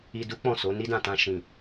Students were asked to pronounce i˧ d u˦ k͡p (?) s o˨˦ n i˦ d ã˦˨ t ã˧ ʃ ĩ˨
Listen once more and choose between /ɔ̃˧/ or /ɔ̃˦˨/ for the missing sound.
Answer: ɔ̃˦˨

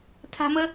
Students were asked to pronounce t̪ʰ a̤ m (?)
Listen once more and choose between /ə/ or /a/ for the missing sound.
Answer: ə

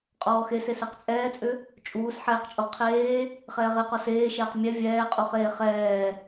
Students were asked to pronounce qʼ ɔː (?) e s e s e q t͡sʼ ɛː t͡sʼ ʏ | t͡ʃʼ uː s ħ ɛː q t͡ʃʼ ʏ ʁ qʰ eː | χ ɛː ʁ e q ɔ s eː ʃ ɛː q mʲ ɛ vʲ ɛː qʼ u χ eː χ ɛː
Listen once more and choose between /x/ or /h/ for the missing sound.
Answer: x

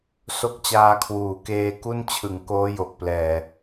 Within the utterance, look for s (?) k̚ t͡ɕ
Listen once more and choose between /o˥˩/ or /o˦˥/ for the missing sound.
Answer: o˦˥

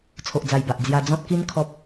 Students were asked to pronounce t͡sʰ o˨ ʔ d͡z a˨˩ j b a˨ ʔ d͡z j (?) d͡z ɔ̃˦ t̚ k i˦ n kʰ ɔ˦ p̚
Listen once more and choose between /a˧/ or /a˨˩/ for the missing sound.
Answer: a˧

